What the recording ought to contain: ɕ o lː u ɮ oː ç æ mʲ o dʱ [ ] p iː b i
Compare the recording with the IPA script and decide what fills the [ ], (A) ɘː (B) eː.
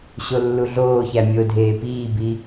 B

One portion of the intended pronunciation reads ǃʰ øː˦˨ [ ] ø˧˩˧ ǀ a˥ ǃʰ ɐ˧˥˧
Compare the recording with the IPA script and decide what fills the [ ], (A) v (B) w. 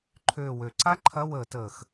B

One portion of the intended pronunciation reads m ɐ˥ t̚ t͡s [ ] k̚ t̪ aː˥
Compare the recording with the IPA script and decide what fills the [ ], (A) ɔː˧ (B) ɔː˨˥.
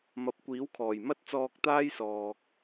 A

